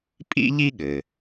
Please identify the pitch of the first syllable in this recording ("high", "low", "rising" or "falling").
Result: high